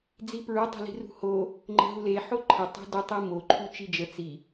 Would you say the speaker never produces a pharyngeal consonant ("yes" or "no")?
no